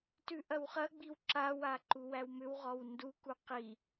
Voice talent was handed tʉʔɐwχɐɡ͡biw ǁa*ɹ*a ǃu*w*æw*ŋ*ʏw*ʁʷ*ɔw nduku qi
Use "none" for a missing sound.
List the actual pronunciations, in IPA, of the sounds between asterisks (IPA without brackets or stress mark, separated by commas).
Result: w, w, m, ʁ